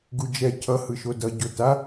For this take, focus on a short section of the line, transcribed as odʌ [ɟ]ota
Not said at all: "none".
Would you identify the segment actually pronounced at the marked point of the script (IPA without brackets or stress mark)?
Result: ɟ